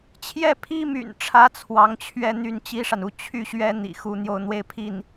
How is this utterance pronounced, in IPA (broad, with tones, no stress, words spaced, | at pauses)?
t͡ɕʰjɛ˥˩pʰi˥my̰˨˩nʈ͡ʂʰä˧˥ t͡sʰwɑ˧˥ŋt͡ɕʰɥɛ˥˧ n̪y˥˩nt͡ɕi˥ʂa˨nu˥˩ t͡ɕʰy˥ɕɥɛ˥ n̪ḭ˨˩xu˥ n̪jo˥˧ʊ̯n̪we˥˧ɪ̯pʰi˥˩n